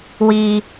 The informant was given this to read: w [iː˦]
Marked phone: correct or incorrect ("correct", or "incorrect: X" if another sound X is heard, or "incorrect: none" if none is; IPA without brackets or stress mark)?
correct